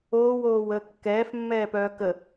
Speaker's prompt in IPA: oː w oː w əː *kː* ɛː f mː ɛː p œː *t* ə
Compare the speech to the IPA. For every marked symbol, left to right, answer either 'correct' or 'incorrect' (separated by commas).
correct, incorrect